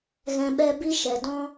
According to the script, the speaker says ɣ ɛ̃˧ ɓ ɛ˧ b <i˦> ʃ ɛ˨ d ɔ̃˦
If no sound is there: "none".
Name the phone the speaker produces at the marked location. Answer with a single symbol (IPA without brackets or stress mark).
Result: i˦